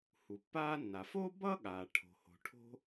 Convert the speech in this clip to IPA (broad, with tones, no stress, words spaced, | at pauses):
hu˩pːaː˥nːa˩ fo˥bʌ˥ɠaː˩ ʈʰo̤˩ho̤˩ ʈʰo̤˥